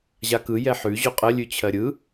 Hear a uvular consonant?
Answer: yes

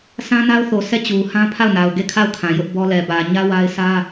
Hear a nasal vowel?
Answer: yes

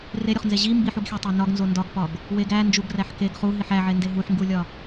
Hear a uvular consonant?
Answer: yes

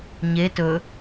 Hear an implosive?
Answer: no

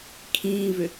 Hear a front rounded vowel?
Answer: yes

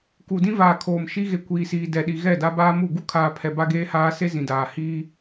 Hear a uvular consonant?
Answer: no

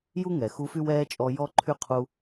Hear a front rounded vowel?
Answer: yes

